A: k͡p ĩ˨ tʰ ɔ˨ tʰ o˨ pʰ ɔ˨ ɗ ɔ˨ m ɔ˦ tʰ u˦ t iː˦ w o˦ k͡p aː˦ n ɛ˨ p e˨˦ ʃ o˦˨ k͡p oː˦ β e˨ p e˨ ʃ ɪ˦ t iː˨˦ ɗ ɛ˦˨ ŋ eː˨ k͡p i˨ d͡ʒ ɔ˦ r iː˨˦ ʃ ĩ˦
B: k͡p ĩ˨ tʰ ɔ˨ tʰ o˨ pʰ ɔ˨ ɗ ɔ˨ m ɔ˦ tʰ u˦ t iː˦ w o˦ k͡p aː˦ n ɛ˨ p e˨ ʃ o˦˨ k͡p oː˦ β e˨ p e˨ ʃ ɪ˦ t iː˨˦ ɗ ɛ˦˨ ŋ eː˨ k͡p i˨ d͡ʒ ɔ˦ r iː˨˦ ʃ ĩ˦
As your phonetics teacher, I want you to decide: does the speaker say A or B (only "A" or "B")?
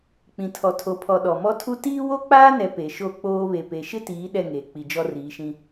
B